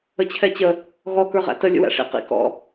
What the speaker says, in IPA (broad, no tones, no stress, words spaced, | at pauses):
ət͡ɕʰɛt͡ɕə | ɣɔ kə˞ʁæ̰tə lʲə̰wæ̰ʂḭ qḭ kɔ̰